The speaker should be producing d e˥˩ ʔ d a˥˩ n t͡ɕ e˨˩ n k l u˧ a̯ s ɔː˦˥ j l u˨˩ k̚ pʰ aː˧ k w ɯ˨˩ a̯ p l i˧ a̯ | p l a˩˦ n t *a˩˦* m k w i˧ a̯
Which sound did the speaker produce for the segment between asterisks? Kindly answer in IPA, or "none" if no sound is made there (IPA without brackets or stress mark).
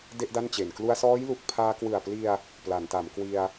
a˩˦